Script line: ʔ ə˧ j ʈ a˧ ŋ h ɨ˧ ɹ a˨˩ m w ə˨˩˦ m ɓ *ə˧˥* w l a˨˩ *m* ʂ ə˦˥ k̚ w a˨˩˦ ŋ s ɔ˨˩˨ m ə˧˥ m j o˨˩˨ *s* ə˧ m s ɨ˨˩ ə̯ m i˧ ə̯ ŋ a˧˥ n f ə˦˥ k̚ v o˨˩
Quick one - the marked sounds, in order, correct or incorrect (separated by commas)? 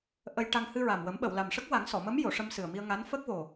incorrect, correct, incorrect